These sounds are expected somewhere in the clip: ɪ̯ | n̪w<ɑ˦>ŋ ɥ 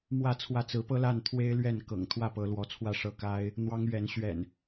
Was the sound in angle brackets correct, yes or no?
yes